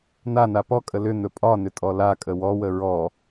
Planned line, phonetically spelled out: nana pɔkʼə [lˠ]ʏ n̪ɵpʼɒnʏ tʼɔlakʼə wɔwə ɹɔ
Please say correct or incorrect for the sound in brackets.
incorrect